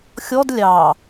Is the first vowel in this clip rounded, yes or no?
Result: yes